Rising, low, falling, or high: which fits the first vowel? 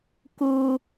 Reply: high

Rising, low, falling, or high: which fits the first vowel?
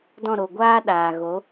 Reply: falling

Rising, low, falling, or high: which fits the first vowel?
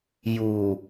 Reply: low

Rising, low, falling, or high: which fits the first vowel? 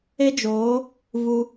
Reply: high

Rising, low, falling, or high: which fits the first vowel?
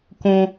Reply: high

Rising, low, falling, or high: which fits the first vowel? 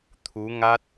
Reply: rising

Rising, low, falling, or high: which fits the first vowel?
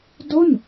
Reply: falling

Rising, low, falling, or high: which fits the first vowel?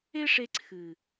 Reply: high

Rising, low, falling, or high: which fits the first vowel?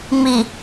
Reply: low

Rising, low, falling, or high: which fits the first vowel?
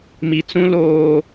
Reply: low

